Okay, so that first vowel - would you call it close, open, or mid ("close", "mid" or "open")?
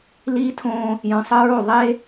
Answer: close